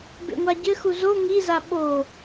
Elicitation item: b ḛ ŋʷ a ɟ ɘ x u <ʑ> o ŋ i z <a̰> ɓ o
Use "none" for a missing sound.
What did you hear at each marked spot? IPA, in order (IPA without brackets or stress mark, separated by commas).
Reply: z, a